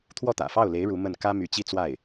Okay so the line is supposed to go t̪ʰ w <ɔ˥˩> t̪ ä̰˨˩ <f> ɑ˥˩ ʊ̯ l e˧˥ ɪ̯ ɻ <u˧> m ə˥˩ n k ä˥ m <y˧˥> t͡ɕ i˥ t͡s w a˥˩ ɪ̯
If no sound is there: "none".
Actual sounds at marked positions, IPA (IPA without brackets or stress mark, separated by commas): ɔ˥˩, f, u˧˥, y˧˥